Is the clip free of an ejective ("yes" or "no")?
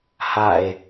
yes